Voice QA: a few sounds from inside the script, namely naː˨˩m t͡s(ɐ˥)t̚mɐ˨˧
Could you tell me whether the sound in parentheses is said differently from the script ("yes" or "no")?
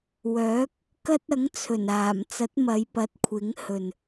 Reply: yes